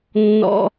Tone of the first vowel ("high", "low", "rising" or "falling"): high